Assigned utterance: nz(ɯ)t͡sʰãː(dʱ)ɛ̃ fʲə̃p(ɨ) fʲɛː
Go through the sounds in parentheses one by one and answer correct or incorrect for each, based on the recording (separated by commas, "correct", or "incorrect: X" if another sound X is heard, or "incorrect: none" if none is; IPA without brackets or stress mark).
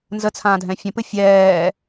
incorrect: ə, correct, correct